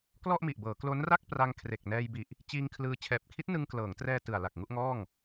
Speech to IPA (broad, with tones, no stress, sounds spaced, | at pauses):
k l ɔ˥˩ ʔ m i˨˩ ʔ b ɤː˩˦ k l o˦˥ n r a˥˩ k̚ p r a˧ ŋ kʰ r e˨˩ k̚ n ɛː˧ j b i˨˩ ʔ | t͡ɕ iː˧ ŋ kʰ l ɯː˧ t͡ɕʰ ɛː˨˩ p̚ kʰ i˦˥ t̚ n ɯ˧ ŋ k l ɤː˩˦ ŋ t r ɛː˧ t ɯ˨˩ a̯ l a˨˩ k̚ ŋ u˥˩ ʔ ŋ ɔː˥˩ ŋ